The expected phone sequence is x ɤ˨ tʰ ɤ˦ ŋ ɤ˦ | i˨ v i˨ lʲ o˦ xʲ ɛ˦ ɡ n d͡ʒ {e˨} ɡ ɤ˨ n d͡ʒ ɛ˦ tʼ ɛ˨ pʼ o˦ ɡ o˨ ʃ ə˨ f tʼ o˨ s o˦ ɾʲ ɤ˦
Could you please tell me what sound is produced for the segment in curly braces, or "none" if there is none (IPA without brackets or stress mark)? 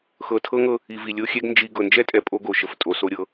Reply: i˨